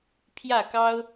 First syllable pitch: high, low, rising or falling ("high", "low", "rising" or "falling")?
falling